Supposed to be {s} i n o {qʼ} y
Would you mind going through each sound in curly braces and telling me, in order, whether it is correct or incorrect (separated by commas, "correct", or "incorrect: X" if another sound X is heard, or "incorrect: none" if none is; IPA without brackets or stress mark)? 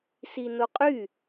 correct, correct